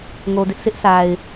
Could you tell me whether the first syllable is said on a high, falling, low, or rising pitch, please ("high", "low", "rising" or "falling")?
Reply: low